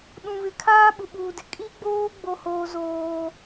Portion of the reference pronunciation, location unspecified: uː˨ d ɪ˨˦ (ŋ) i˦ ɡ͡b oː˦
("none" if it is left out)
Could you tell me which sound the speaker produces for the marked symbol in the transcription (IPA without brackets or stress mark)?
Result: kʼ